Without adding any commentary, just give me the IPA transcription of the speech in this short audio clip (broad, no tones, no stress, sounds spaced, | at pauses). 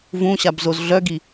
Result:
v ũ ɕ a b z o z ɮ œ ɡ i